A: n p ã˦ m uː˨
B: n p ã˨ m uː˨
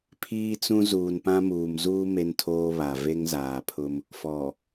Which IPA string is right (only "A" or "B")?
A